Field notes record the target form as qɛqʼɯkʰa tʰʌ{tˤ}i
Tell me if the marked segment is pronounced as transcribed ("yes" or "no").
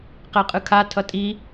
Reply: no